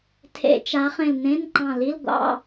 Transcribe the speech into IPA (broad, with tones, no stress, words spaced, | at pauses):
tʰḛ˧˩˧t͡ʃa˨˦ χẽ˧˩lnẽ˧˥˧nǃɑ̃˧˩li˧˥˧l ɡʷɑ̰˧˥˧